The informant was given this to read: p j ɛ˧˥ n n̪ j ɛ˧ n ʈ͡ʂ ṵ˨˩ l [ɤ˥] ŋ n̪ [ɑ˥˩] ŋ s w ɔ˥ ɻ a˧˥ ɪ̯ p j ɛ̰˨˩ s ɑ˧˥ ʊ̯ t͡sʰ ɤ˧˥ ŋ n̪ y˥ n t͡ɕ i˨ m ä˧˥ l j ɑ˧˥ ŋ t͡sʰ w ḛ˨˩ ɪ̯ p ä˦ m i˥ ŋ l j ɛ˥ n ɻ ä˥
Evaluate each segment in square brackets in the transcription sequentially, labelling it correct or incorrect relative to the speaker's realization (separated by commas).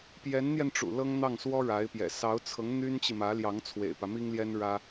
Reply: correct, correct